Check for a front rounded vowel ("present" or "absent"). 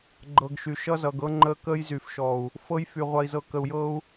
present